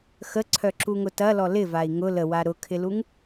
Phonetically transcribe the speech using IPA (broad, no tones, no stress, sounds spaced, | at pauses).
x ə ǀʰ œ ǁ u ŋ ʊ t ɐ l ɔ l ɪ v a i̯ ŋ ʊ l ə w a ɾ ʊ kʰ ɪ l u ŋ